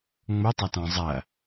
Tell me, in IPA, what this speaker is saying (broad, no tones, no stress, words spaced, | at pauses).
ŋ͡motˤɐtɔ̃ zˤɐ